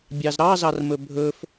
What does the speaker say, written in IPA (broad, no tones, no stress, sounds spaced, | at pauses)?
bʲ ɑ z ɾ ɑ z ɑ r m ɵ bʱ ɵ f